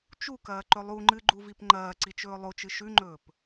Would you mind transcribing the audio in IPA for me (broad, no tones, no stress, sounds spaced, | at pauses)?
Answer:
t͡ʃ u k ɐː ǃ ɵ lˠ u ŋ͡ǃ ɨ ɡ͡ǃ u v i p ŋ͡ǃ ɐː ǀ i t͡ʃ ɵː lˠ o t͡ʃ ɨ ʃ ʉ ŋ͡ǃ ɵː p